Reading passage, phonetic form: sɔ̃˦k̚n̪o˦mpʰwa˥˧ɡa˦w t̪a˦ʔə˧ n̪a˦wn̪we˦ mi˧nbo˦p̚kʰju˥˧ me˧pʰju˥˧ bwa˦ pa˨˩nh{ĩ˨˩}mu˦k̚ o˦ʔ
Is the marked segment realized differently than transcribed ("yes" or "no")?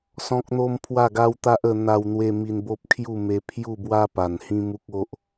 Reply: yes